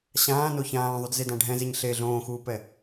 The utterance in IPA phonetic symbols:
ɕ ãː n o ç ãː ðˤ u d z e d ã ɖʱ ɛ̃ z e ɲ ɬ e ɮ õː x uː p ɛ

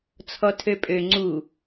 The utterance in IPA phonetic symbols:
t͡sʰ ɔ tʰ ø pʼ ø ŋ͡ǀ u

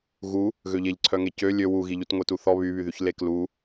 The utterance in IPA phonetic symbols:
ɣ u | ɣ ø ʎ e ʎ ǀʰ œ ŋ e c ø lʲ ø w u ɣ i ʎ u t ŋʷ e t u θ ɔ β y β y ð y ç l e k l u

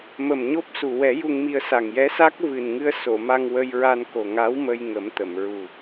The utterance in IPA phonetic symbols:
m ə˨˩ m ɲ o˦˥ p̚ s u˨˩ w ɛ˨˩˦ j u˧ ŋ m i˧ ə̯ s a˨˩ ŋ j ɛ˧˥ s a˦˥ k̚ v ɨ˨˩ n ŋ ɨ˧ ə̯ s o˨˩˨ m a˧ ŋ w ə˧ j ɹ a˧ n k o˨˩ ŋ a˧˥ w m ə˧ j ŋ ə˨˩˦ m t̪ ə˨˩˨ m ɹ u˨˩

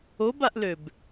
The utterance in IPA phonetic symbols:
o b a ʔ l ø b

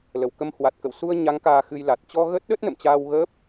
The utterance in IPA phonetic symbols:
l ə˧˩ w k ə˧ m h w a˨˩ t̚ k ə̰˧˨ w s u˧ ə̯ ɲ a˨˦ ŋ k aː˧ x ɨ˧ j l a˨˩ t̚ t͡ɕ ɔ˧ ɣ ə˦˥ t̚ ɗ ə˦˥ t̚ n ə̰˧˨ m t͡ɕ aː˧ w ɣ əː˦˥ p̚

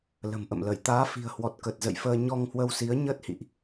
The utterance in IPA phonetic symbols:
l ə̤˨˩ m ʔ ə̰˧˨ m l ə˧˩ j t̪ aː˨˦ f i̤˨˩ ə̯ h w ɔ˨˩ t̚ k ə˨˩ t̚ z ə̰˧˨ j f əː˧ ɲ ɔ˧ ŋ h w ə˧ w s i˨˦ ə̯ ɲ əː˦˥ t̚ h ḭ˧˨ ʔ

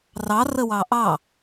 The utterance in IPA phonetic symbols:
r ɑ r ə w ɑ ʔ ɑ

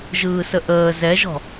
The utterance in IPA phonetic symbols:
ʒ ɯː s ə ʔ əː z ɛ ʒ ɔ̤

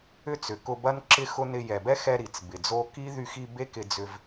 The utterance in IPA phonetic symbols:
ʏ˦ t͡s ʏ˨ k ʊ˧ b ɐ˦ n ǁ ɪ˦ x ʊ˦ n ɪ˧ j ɛ˨ b ɛ˦ x ɛ˧ ɾ i˨ t͡s b ɪ˨ d͡z o˦ k i˦ ð y˧ x i˧ b e˦ k ɪ˧ d͡z ʏ˧ v

